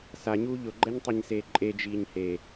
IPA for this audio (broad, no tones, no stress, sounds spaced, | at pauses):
s a ɲ uː ʎ ʊ ɡ͡ǃ ɛ ɲ tˤ i ɲ s eː ǃʼ e d͡ʒ iː ɲ h e